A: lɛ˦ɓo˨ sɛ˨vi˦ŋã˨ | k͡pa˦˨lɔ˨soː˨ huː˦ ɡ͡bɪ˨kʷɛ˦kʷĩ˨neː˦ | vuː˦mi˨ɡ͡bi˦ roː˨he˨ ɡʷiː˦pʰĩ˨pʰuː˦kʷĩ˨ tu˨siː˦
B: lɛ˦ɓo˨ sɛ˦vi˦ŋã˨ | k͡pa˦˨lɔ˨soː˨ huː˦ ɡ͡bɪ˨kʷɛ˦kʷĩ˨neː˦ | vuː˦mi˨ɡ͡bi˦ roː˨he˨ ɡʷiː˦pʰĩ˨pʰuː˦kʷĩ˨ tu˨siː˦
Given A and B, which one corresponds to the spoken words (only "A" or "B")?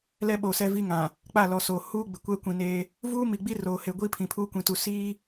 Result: B